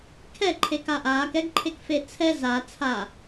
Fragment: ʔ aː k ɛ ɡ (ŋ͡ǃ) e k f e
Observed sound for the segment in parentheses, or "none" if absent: ǃʰ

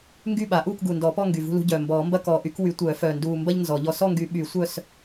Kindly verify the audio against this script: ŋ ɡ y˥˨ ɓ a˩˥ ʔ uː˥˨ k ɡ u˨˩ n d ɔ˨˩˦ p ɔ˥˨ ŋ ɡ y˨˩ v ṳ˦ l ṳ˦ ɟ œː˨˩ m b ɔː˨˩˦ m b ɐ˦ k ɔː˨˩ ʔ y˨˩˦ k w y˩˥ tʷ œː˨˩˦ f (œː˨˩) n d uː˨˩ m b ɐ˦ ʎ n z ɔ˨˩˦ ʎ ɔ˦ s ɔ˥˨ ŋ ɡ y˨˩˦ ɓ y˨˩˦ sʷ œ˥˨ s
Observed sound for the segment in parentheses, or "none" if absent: œː˨˩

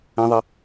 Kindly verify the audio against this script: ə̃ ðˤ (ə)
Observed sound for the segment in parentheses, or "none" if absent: ə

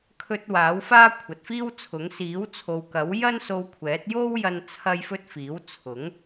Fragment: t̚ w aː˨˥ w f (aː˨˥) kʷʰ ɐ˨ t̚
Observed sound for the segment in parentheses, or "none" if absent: aː˥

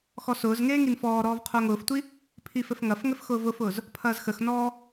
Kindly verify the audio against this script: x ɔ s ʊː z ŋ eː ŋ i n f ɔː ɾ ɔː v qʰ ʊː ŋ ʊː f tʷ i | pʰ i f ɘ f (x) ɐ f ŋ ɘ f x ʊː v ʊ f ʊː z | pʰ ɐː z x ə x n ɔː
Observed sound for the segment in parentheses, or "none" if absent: ŋ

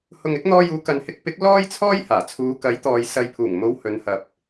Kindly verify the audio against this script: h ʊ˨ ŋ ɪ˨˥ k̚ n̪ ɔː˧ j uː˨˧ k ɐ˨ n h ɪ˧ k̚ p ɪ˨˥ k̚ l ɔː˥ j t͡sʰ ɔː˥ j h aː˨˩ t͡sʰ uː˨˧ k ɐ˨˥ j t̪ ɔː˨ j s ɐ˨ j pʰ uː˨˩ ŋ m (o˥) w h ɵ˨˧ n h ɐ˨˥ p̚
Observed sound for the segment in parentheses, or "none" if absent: o˨˧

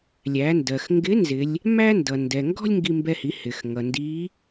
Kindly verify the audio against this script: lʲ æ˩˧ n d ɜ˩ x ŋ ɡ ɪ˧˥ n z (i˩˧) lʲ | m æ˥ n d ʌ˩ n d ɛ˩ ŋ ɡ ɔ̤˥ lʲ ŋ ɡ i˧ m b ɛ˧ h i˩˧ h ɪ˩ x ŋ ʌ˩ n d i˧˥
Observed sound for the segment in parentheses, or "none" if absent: ɪ˩˧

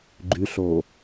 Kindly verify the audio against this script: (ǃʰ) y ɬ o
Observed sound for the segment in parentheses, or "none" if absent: ɡ͡ǃ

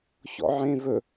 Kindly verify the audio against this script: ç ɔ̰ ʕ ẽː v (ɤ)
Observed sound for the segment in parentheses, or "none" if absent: ɵ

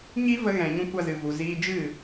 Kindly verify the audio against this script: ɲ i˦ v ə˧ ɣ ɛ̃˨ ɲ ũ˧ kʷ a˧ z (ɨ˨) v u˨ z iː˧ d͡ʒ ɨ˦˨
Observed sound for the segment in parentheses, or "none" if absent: ɨ˨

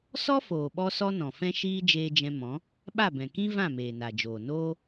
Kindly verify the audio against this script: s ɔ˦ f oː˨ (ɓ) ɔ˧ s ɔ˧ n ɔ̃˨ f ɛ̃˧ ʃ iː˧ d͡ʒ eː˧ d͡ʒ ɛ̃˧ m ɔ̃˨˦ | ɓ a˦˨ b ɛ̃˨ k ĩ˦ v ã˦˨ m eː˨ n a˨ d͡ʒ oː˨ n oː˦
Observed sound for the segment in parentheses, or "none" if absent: ɓ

